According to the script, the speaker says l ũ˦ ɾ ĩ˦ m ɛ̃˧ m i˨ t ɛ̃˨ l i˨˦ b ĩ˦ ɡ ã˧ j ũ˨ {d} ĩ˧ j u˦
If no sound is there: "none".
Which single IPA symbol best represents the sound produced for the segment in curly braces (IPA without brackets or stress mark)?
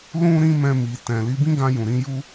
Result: ɾ